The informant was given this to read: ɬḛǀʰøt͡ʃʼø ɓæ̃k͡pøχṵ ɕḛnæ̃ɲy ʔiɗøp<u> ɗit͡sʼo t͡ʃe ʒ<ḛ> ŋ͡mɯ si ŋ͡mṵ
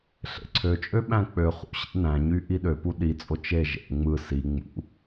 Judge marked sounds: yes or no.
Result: yes, yes

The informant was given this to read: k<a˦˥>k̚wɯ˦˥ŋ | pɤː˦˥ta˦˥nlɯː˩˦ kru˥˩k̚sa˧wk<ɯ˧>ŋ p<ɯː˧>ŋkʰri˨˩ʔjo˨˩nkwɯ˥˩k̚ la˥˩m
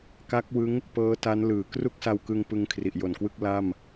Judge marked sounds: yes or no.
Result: yes, yes, no

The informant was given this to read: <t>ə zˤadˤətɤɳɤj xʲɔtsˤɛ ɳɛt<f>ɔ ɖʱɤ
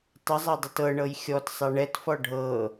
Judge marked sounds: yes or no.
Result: no, yes

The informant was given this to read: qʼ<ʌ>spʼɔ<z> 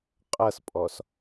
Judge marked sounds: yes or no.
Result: yes, no

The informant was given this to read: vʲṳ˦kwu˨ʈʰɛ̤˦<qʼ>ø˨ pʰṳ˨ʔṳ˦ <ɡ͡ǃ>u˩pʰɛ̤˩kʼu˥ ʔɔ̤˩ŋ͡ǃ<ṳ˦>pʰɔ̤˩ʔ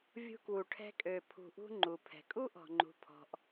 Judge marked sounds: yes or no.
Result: no, no, no

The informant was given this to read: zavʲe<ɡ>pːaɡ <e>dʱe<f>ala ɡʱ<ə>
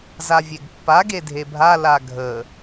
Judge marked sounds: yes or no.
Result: yes, yes, no, yes

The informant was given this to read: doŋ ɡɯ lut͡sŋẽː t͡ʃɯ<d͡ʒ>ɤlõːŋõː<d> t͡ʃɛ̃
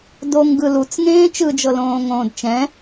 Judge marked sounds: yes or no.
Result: yes, yes

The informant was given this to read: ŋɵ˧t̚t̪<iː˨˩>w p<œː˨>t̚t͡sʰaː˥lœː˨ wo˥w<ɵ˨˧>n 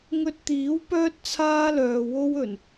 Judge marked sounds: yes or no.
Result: no, no, no

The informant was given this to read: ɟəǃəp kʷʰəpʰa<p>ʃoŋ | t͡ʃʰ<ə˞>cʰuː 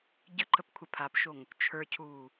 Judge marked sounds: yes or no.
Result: yes, yes

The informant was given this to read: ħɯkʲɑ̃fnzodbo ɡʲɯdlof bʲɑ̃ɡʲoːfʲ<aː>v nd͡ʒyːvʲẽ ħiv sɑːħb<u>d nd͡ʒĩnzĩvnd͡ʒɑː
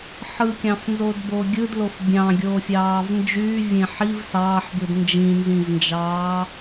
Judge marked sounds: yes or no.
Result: no, no

